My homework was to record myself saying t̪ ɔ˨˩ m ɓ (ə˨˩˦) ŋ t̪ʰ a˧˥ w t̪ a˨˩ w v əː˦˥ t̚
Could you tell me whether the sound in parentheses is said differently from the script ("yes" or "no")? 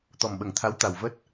no